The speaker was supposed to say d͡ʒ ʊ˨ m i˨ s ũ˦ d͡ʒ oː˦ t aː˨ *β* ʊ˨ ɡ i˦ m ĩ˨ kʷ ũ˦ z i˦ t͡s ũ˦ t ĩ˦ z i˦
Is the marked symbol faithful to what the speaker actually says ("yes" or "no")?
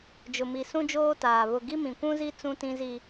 yes